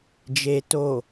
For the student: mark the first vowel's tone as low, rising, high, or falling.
low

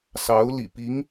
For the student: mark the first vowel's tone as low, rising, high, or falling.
rising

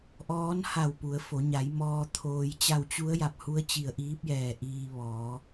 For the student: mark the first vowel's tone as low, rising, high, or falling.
rising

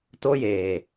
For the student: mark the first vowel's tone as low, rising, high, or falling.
high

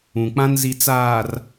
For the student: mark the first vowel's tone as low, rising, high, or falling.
low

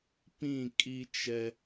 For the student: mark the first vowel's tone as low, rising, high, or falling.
falling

